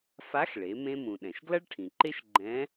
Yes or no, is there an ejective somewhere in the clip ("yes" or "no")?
no